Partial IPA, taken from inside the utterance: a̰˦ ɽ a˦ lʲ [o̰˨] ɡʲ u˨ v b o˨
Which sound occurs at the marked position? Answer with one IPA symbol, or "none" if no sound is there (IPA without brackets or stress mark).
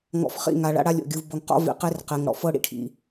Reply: o̰˨